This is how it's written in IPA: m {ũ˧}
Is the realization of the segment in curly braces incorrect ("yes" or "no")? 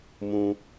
no